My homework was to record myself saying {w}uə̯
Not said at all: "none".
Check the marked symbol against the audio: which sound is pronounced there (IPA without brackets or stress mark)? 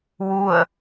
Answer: w